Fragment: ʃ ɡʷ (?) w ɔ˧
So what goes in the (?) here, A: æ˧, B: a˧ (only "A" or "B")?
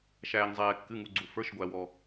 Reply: A